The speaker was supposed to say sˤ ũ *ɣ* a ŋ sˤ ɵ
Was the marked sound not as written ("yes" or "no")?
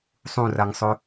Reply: yes